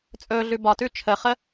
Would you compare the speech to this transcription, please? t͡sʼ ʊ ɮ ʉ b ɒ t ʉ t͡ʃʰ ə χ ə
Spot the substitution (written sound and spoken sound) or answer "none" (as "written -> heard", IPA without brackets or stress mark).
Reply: ʊ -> ɵ